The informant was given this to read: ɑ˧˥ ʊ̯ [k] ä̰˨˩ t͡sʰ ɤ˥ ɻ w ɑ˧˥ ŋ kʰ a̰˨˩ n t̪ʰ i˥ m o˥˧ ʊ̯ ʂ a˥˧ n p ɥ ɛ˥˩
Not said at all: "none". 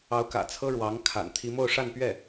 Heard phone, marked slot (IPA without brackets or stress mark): k